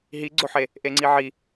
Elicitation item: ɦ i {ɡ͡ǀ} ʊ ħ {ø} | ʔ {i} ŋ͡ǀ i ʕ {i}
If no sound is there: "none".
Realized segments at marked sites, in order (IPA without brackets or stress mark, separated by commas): ɡ͡ǀ, e, e, i